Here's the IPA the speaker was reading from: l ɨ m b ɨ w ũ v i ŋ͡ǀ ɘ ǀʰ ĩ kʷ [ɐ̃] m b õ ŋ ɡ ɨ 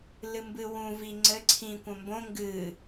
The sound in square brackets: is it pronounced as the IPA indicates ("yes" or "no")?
yes